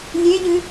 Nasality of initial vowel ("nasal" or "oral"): oral